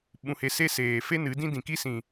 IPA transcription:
ɓ ũ˧ h e˧ s e˦ s eː˨ f e˦ n ɨ˨˦ d ĩ˦ d ĩ˨ k i˦ s ĩ˨

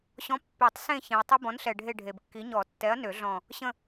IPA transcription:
ɕ ɔ̃˨˥ pː e˨˩˦ tˤ s ẽ˦˨ ç ẽ˨ ɐ̯ tˤ ə˦˥ b ɔ̃˨˥ n ɬ ɛ˨ ɖʱ e˦˨ ɖʱ e˨ b kː i˨˥ ɲ ɔ˨˩˦ tː ɛ˨˥ ɐ̯ n ø˨˩˦ ɮ ɔ̃˦˨ | ɕ ə̃˦˨

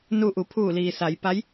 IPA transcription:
n u˧ ʔ u˩˧ pʰ uː˧˩ l iː˩ s a˩˧ j p a˧˥ j

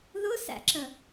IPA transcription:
ð ʊ s æ̰ ǁ ə

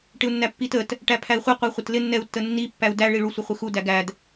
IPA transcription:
ʈ ɪ u̯ nː æ pː i t ə t | ʈ æ pʰ æ i̯ χʷ i qʷ æ χʷ ʌ t l ɪ nː ɛ u̯ tː ə nː i pː æ u̯ d æ ɭ i ɭ u sʷ ɪ χʷ ɪ x u d æ ɡ æ d

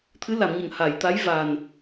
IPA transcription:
t̪ʰ ɨ˧˥ l a˨˩˨ m ɲ ə˨˩˨ ŋ h a˨˩˨ j t̪ a˧˥ j v a˨˩ n

